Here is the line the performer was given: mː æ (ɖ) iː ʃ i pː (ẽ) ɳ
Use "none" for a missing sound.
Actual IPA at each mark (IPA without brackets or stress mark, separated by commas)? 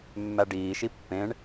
ɖ, ẽ